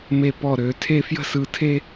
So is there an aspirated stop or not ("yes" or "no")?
yes